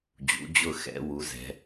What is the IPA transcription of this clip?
d͡ʑ ṵ˩˧ d͡ʑ ʊ˧˩ x ɛ̰˩˧ w u˩˧ z ɛ̤˩˧

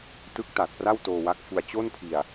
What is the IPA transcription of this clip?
t ɯ˦˥ k̚ t a˨˩ t̚ p r a˥˩ w t oː˧ w a˦˥ k̚ f u˧ a̯ t͡ɕ o˥˩ n pʰ i˧ a̯

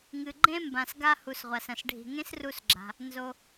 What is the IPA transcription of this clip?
ŋ ɨ˨ ɡ͡ǃ ẽ˥ m b ã˨ s ɡ a˦ h u˨ s ʁʷ a˩ s ɐ̃˩ s ɖʱ i̤˨ ŋ ẽ˥ s r u˦ s ɡ͡ǁ a̤˨ | n z o˨

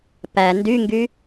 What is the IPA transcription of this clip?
p æ n d y ŋ ɡ y

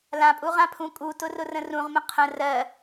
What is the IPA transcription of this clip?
l ã pʼ u ʁ ã pʰ ũ kʼ u t ʊ r ʊ r ə̃ r ũ ʁ m ə̃ qʰ ə̃ r ɜ

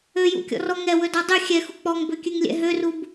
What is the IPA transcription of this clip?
ø j ṵ kʲ ɔ̰ r ɔ ŋ ɛ w ɵ d ɔ dˤ ɵ xʲ ɛ x u k͡p ɔ ŋ b ø kʲ ʉ ŋ lʲ ɛ̰ ɦ ø r u b

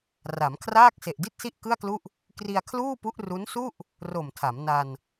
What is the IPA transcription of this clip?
r a˩˦ m kʰ r aː˥˩ k̚ s e˨˩ ʔ d i˥˩ t̚ s i˥˩ ʔ k ɯ˥˩ a̯ k l u˥˩ ʔ | k r i˧ a̯ kʰ l uː˥˩ p u˦˥ ʔ r u˦˥ n s u˥˩ ʔ | r o˨˩ m tʰ a˩˦ m n a˧ n

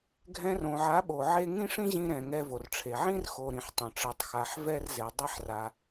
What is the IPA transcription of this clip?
ɡʱ ɛ̃˧ r õ˨ ʕ a˨˦ ɓ o˨ ʕ e˦ ŋ ĩ˦ ʂ ĩ˦ ʑ ĩ˧ ɾ ɛ̃˨ ŋ ɛ˧ v o˨ r ʈ͡ʂʰ e˨ ʕ ĩ˦ r x o˨ ɾ ĩ˨ ħ tˤ õ˨ ʈ͡ʂ ɛ˧ tˤ x a˧ ħ v ɛ˦ r z e˨ dˤ e˦ ħ r a˧

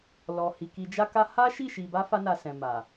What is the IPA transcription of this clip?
l ɔ˨ h i˨ k i˨ d͡ʒ a˧ k a˧ h a˦ ʃ i˦˨ ʃ i˧ b a˦ f a˦ n a˧ s ɛ̃˨ m a˨

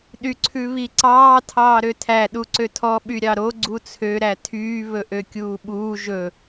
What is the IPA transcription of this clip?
ɗ y ǀʰ ʉ β i ǀ ɑː tʰ ɑː ɾ ø tʰ æ ɗ u ǀ ø tʰ ɔ ɓ y ɾʲ ɑ ɾ o ɡ͡ǀ u t͡sʰ ø ɾ æ tʰ yː β ɵ ʔ ø kʲ uː ɓ uː ʒ ɵ

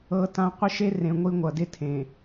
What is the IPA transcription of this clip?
ɤ˦ t ã˦ qʷ ɪ˦ ʃ e˦ r ẽ˨ ŋʷ i˦ ŋʷ ʌ˨ d ɪ˦ tʰ ẽ˨

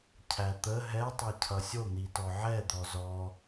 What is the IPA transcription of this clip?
cʰ æ t̪ ə ɦ ɛ tˤ ɛ cʰ ʌ sʲ o n̪ i t ɔ ʕ ɛ d̪ ɔ z ɔ

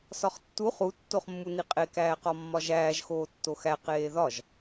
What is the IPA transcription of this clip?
s ɒ χ tː u χ u tː o χ mː u n i qʼ e k æː q ɒ mː ɒ ʒ æː ʒ x oː tː o x æ q eː ð ɒ ʒ

